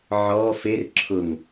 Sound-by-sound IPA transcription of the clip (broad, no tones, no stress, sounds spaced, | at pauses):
ʕ ɔ f e r ǁʰ ʊ ŋ